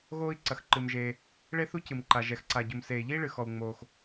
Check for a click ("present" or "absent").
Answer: present